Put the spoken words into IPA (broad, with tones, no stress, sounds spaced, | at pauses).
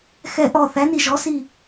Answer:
x ɛ˧˩ ʔ ɔ˧˩ θ æ˩˥ n i˧˩ ʒ ɔ˩˥ s i˧˩